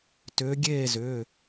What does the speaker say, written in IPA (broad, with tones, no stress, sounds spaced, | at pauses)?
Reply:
t ʏː˨˦ ɡʲ eː˥˨ z ʏː˩˧˩